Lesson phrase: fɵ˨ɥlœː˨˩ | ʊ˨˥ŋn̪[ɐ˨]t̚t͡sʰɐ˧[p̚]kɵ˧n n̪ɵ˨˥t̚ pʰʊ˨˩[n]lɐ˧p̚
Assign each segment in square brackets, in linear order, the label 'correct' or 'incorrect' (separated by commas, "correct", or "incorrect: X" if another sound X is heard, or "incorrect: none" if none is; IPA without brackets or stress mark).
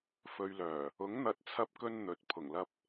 incorrect: ɐ˨˥, correct, incorrect: ŋ